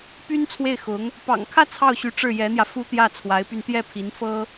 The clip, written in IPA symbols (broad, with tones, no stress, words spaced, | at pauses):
py˥n t͡sʰwe˥˩ɪ̯xʊ˧˥ŋ | pɑ̰˨˩ŋkʰä˥˧ t͡sʰɑ˥˩ʊ̯ɕy˧˥ ʈ͡ʂɻ̩˥˩jɛ˧˥n̪jä˧ fu˥t̪jä˥˩ t͡sʰwa˧˥ɪ̯py˧n t̪jɛ˥˩pʰi˧˥n fɤ˥